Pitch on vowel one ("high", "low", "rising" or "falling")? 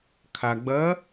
low